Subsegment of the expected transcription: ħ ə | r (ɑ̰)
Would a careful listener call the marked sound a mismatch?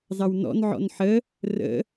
yes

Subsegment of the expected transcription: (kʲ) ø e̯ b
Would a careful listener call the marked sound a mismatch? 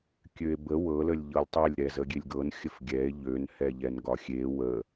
no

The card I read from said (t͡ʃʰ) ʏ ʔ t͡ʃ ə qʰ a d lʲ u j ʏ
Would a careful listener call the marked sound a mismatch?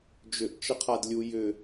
yes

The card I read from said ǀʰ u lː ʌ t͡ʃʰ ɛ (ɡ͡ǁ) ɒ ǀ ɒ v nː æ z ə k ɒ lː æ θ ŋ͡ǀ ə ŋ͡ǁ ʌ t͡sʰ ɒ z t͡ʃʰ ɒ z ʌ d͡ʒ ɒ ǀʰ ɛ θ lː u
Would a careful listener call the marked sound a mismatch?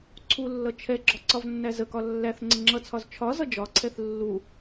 no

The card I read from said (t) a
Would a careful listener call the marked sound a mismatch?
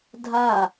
yes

